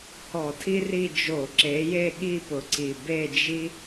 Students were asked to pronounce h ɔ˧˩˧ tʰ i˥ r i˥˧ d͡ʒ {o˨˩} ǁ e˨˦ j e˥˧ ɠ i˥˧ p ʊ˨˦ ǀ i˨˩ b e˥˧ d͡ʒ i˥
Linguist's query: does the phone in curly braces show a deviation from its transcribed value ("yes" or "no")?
yes